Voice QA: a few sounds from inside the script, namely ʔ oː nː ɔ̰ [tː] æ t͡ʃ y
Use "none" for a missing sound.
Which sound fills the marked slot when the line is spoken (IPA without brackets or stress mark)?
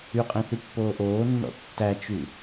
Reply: tː